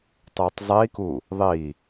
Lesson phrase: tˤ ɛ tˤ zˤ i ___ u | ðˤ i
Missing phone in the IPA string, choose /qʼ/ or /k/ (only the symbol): k